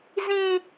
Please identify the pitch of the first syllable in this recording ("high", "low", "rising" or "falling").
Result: high